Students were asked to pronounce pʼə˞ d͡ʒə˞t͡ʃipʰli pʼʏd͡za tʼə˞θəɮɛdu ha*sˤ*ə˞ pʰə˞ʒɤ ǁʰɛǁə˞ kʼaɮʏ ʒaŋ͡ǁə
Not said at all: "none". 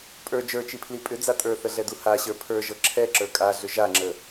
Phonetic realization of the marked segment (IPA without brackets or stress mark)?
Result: ɕ